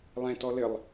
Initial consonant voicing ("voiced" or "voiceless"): voiced